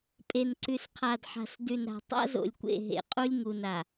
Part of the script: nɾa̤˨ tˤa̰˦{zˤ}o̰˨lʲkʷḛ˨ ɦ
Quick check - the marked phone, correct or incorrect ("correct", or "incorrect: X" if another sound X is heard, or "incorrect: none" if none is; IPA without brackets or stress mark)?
incorrect: z